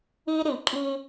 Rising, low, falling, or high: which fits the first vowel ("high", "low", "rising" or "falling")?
high